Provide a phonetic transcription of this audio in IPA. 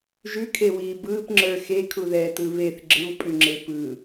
ʒ ʉ kʰ e w iː b ɯː p ŋ͡ǁ ə˞ x e kʰ u ð ɛː t ɯ β e θ ɡ͡ǁ ɯ w pʼ ʉ ŋ͡ǁ e p ɯ

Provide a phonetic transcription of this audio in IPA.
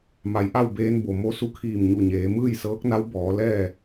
m a˩ j ʔ a˥˨ w b eː˧ n b o˩ m o˧˥ s u˧˥ kʰ iː˧˩ m ɲ u˧˩ ɲ eː˩˧ m ɯː˥˨ j s ɤː˧˥ k̚ n a˧˥ w b ɔː˩˧ l ɛː˥˨

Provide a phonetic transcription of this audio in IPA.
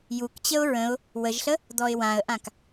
j u k t͡ɕ ə ʊ̯ ɹ ə̃ ʊ̯ | w ə ʒ ɬ ə | d̪ ɔ ɪ̯ w ã ə̯ ʔ ã k

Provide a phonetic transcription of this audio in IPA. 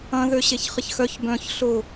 ɐ̃ ð ø ɕ e ç χ ɪ ç x œ ç b œ̃ ç ɬ ʊ

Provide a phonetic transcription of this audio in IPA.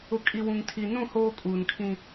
ʊ˨ kʼ i˨ w ũ˨ ŋ tʰ i˨ n ũ˦˨ h oː˦ kʼ uː˨ n kʰ ĩ˦

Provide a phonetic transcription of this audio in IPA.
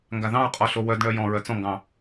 ŋ ɡ a ð ɑ̃ ɹ qʼ ɔ ɬ o w œ d ɳ œ j ɔ̃ ɹ œ t͡s ɔ̃ ŋ ɡ ɑ̃

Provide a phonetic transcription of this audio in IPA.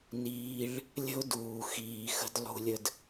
n iː˦ ɭ | lʲ ə̤˦ ʊ̯ d uː˨ x iː˨ x ə̤˧ d lˠ ṳ˧ lʲ ə˧ d

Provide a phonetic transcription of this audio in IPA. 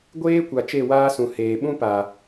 ɡʷ eː˦ kʷ a˨ t͡ʃ e˦˨ w aː˦ s ũ˨ h eː˨ ɓ ũ˦ p a˨

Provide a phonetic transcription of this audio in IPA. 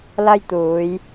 l ɐ˥ j t̪ uː˨˧ j

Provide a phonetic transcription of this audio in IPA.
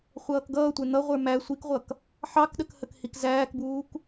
χʷ ʌː k ɡ ʌː tʷ ɛ n̪ ʌ ʁʷ ə˞ m æ sʷ i k ʁʷ ʌ k | ħ ɑ k ɗ ə k h ə k h i k z æː k b uː k

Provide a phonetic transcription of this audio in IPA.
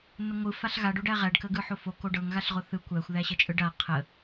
n ə ŋʷ ɯ f a ɬ ɣ a ɖ o ɖ æ ʁ æ ɖ k ə ɡ ɯ ħ o f o k o ɖ ɤ ŋ ɣ a ɬ ʁ o θ ɯ kʷ æ xʷ ð æ ɕ ə t͡ʃʼ ɯ ɖ a qʰ ə

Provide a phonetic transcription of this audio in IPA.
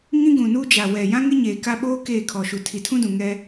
ŋ ĩ˦ ɡ ũ˨ n u˦ d͡ʒ a˨ w ɛ˨ j ã˦ ŋ ɪ˦ ɲ eː˨ k a˦ ɓ oː˦ k eː˦˨ kʰ ɔ˨ ʃ u˨ tʰ i˨ tʰ ũ˦ d ũ˨ ŋ ɛ˦

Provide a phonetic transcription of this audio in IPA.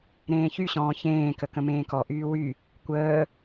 ɾ ẽː ç y ɕ ɔ̃ː ç ẽː k ə k ə̃ m ẽː k ɔ ʔ yː w y | kʷ əː

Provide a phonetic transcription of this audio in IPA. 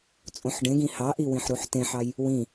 t͡sʼ õ ħ ɖ ẽ ɡ ĩ h ɑ ʔ i w ĩ ħ ɾ u ħ t ẽ ħ ɑ j | w ĩ

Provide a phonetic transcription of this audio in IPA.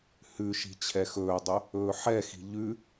h ʉ ʃ i̤ t͡ɕʰ ɛ x ɵː dˤ ɵ | ɵː ħ ɛ x i̤ ʎ ʉ

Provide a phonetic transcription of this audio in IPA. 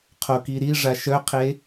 qʰ o k i ɾ i ʐ a ʃ œ qʰ e

